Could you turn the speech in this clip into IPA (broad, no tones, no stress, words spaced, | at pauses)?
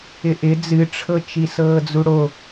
ɪʔɪ d͡zɨʈ͡ʂʰɤt͡ʃi sɤːd͡zuɽo